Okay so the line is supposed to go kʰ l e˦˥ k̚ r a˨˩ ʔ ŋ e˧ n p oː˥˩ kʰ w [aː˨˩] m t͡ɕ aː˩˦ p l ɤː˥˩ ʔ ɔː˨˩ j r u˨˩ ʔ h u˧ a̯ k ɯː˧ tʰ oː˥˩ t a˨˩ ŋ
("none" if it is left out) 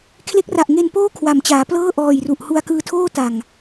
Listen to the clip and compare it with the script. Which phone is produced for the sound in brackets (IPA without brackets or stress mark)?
a˨˩